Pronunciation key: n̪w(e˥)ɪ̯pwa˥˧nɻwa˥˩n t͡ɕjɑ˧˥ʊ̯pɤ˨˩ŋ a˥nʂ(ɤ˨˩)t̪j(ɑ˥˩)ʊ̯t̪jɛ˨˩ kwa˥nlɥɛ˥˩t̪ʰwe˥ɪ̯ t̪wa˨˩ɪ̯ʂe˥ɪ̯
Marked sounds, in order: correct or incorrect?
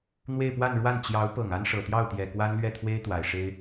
incorrect: e˥˧, correct, correct

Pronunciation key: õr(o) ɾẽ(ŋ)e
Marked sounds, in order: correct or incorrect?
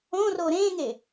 correct, correct

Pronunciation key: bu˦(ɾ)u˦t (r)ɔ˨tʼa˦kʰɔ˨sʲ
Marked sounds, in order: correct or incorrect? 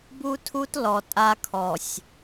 incorrect: tʰ, incorrect: l

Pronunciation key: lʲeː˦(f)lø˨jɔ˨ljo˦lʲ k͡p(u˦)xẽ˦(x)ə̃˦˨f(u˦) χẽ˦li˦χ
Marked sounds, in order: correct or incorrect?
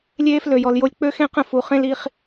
correct, incorrect: ø˦, incorrect: q, incorrect: u˨

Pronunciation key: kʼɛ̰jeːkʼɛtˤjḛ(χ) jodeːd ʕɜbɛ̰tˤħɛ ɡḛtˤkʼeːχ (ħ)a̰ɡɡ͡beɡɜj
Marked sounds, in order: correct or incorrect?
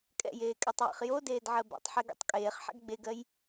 correct, correct

